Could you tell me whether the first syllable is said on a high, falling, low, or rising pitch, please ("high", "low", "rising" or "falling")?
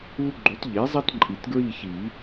high